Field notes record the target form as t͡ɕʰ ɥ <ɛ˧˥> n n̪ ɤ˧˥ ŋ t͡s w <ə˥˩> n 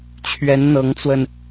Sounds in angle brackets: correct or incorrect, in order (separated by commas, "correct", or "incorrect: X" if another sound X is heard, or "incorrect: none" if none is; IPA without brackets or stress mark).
correct, incorrect: ə˧